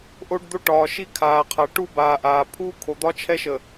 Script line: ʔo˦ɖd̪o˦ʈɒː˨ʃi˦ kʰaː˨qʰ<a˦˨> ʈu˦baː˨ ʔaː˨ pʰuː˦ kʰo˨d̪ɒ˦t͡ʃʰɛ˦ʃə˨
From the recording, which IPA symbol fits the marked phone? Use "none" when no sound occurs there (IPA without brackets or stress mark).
a˨